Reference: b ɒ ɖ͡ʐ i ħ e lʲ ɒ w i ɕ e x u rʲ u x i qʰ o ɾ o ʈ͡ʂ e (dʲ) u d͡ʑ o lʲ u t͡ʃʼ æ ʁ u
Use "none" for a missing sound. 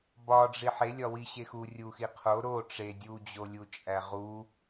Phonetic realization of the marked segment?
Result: dʲ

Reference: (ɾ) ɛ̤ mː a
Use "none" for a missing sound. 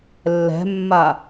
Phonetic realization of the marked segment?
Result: lː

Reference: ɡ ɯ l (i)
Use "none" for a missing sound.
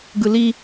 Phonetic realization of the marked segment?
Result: i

